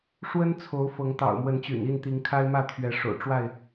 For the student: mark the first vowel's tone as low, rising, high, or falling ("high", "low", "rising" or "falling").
high